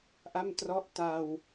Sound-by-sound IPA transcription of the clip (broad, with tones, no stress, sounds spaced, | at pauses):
ʔ a˥˩ m t r ɔ˦˥ ʔ t a˧ w